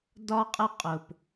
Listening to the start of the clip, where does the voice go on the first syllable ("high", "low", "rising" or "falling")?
high